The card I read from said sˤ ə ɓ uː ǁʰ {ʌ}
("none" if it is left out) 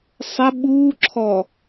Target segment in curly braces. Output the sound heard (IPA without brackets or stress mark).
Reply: ɔ